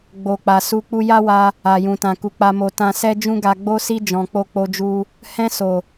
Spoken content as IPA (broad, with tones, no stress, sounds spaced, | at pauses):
ɡ͡b o˨ k͡p a˨ s u˧ k͡p u˧ j a˦ w a˧ | a˨ j ũ˨ t ã˨ k u˨ k͡p a˨ m o˨ t ã˧ s ɛ˦ d͡ʒ ũ˦ ɡ a˧ ɡ͡b o˦ s i˦ d͡ʒ ɔ̃˧ k͡p o˦ k͡p o˦ d͡ʒ u˦ | h ɛ̃˧ s o˨